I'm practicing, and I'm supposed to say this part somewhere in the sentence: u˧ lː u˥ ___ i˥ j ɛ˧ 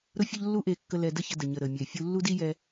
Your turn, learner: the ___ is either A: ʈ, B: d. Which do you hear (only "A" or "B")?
B